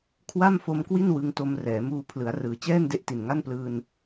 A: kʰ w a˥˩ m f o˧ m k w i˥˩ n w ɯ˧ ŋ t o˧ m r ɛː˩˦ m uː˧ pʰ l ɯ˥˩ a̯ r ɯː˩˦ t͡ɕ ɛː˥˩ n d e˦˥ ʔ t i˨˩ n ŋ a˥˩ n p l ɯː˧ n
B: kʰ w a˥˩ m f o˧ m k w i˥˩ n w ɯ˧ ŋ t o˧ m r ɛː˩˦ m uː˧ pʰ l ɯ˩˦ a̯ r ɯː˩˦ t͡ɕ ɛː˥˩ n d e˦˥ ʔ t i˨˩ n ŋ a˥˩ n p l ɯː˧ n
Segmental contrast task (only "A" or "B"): B